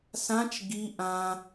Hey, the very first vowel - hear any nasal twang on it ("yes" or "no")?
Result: yes